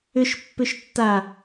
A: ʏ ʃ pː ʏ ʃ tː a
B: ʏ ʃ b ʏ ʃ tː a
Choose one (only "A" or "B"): A